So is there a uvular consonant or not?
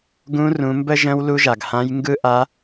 no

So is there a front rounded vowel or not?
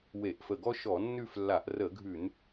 no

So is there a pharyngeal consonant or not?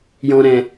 no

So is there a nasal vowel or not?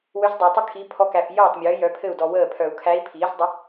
no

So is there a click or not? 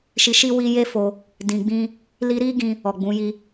no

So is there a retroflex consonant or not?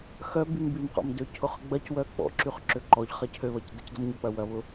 no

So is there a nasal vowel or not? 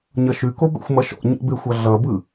no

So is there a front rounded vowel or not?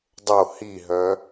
yes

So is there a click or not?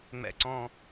yes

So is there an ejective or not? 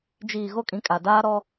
yes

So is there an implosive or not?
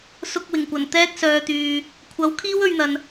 no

